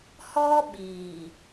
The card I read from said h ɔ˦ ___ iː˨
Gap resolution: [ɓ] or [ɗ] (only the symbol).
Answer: ɓ